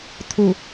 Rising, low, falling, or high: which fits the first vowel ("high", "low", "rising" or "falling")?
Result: low